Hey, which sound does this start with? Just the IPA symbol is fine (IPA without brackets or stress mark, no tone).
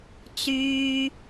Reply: t͡s